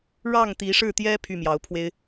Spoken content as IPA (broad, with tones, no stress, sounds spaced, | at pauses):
ɻ ɑ˥˩ ŋ t̪ i˧˥ ʂ ɻ̩˥˩ t̪ j ɛ˥ pʰ y˥˩ m j ɑ˧˥ ʊ̯ pʰ w e˥ ɪ̯